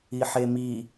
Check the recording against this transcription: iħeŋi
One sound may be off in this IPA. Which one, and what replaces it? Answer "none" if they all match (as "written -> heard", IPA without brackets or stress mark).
ŋ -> m